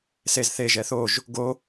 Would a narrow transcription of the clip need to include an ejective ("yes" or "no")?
no